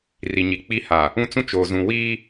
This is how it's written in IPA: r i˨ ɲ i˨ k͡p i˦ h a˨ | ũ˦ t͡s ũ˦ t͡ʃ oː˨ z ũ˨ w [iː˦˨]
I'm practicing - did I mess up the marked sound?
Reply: yes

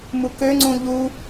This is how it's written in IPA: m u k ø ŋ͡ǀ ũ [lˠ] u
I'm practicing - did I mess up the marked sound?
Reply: yes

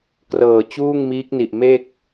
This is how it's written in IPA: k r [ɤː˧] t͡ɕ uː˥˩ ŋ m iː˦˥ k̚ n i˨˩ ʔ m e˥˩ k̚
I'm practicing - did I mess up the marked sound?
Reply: yes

